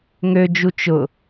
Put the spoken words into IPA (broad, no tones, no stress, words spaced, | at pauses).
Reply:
ŋød͡ʒu t͡ʃʊ